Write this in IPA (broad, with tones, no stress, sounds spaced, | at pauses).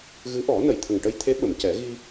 ɣ ɨ˧˥ ʔ ɔ˨˩˦ n ə˨˩˨ j t̪ʰ ə˨˩ ŋ ʈ ə˧ j t̪ʰ e˧˥ ɓ ə˨˩˨ m c ɛ˨˩˦ ɣ i˧